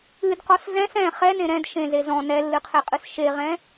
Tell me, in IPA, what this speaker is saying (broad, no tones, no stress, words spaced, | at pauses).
ɨdqɔs zɛ̃s ɛ̃ χɛnẽ ɾɛ̃d ʃẽze zɔ̃ nɛlːɨqʰeqʼɨs ʃeʁɛ̃